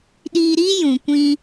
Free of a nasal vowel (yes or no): no